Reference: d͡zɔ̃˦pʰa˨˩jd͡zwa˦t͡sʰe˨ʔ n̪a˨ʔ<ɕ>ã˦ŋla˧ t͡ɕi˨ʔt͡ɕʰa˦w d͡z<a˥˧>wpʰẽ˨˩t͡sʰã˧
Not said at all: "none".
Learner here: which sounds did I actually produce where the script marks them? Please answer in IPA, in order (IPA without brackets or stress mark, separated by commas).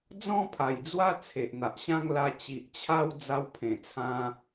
ɕ, a˧